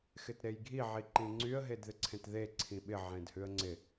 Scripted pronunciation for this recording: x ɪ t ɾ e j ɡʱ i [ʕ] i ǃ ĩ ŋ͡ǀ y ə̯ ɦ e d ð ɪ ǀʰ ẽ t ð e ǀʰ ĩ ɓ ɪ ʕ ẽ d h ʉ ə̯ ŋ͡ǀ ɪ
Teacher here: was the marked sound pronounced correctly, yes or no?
yes